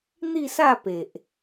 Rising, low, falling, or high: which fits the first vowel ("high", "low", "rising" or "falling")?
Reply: falling